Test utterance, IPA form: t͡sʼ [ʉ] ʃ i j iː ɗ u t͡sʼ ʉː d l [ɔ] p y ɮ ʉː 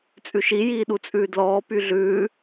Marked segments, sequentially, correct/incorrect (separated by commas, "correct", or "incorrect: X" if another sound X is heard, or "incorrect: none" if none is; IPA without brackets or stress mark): correct, incorrect: ɔː